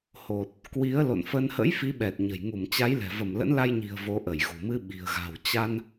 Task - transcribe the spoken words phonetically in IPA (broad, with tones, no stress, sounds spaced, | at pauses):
h o˨˩ t̚ | k w i˨˦ ə̯ l o̰˧˨ n f ə˧ n h ə̰˧˥ j f i˨˦ ɓ ɛ˨˩ t̚ ɲ ə̤˨˩ j ŋ u˧˩ m t͡ɕ a˨˦ j l ɛ̤˨˩ v ə˧˩ m l ə̰˧˥ n l a˧ j ɲ i̤˨˩ ə̯ v o˨˦ ʔ ə˧˩ j ɣ ṳ˨˩ m ɨ˧ ɓ i̤˨˩ ə̯ ɣ a̤˨˩ w t͡ɕ a˧ n